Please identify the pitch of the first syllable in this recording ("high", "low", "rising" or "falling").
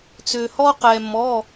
low